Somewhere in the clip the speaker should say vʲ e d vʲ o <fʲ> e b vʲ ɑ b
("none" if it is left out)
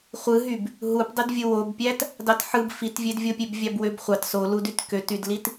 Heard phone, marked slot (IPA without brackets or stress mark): pʲ